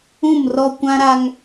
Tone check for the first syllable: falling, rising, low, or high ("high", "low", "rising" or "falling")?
falling